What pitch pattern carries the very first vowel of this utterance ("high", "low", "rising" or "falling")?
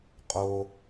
high